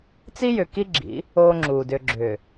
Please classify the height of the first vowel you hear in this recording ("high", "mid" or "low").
high